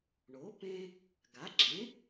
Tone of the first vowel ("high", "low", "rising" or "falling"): rising